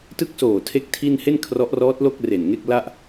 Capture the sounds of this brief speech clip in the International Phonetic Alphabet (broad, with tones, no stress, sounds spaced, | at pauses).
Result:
t ɯ˦˥ k̚ s oː˨˩ tʰ e˥˩ k̚ tʰ i˥˩ n h e˥˩ n kʰ r ɔ˦˥ ʔ r ɔː˦˥ t̚ l o˥˩ k̚ r e˨˩ n ŋ e˥˩ k̚ l a˥˩ ʔ